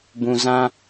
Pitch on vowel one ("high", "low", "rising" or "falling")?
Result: low